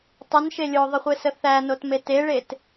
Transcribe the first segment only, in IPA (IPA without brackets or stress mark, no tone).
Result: tˤ